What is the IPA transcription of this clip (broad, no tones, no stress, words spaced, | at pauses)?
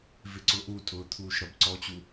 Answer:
vɪǀʊʔutʼʊː t̪ʰuːʃɾʌbǀɔt͡ɕu